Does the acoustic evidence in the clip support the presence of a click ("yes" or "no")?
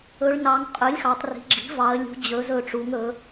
yes